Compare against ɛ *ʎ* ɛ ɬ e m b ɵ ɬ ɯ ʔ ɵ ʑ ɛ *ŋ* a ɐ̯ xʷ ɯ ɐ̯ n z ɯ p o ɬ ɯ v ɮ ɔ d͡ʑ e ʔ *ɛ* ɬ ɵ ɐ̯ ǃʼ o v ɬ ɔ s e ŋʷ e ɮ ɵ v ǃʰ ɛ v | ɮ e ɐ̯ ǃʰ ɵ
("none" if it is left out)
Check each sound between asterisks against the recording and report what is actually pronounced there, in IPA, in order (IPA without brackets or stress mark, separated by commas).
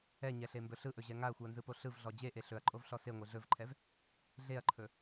ɲ, ŋ, e